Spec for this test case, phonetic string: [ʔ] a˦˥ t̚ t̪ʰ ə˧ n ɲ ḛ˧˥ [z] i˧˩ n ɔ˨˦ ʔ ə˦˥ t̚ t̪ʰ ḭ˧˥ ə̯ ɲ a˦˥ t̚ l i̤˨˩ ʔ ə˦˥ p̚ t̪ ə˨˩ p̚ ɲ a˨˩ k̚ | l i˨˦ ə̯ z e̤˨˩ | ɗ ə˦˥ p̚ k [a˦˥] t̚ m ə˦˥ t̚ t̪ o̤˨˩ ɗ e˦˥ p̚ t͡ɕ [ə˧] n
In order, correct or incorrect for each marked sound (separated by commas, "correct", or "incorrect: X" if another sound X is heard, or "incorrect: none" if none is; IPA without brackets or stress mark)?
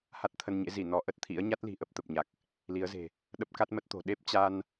incorrect: h, correct, correct, incorrect: a˧